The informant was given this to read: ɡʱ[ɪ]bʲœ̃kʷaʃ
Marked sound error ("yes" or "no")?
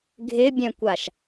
no